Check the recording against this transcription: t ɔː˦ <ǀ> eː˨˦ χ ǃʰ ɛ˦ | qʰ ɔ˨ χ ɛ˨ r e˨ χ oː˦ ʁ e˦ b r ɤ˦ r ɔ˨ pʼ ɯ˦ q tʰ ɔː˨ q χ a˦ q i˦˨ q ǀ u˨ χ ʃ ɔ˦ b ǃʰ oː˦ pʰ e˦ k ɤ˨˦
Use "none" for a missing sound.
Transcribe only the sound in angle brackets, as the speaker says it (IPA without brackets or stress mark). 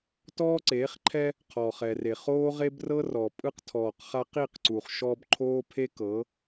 ǀ